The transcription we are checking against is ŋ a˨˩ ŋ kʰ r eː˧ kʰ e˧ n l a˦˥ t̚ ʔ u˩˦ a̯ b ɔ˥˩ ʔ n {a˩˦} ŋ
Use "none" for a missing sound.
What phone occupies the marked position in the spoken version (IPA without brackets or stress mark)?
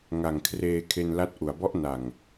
a˨˩